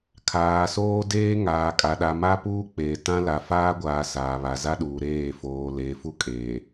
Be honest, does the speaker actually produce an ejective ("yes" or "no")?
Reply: yes